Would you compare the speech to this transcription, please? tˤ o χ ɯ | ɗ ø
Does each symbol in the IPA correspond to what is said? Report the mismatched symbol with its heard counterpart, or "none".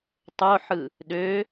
χ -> ħ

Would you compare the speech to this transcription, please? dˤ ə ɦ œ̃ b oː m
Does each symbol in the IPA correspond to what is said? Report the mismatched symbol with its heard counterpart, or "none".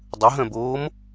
none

